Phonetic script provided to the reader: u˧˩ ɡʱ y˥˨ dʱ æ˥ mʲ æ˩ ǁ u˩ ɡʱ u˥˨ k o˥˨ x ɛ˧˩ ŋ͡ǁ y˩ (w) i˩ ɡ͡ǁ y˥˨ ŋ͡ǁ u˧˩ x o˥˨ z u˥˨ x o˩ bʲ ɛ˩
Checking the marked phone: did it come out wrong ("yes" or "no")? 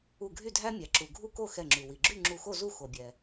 no